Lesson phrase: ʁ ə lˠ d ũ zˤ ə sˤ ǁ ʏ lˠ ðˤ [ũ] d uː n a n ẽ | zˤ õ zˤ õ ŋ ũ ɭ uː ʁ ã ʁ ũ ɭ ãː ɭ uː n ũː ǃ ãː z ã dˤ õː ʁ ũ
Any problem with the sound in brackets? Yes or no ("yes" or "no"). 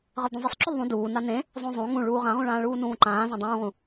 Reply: no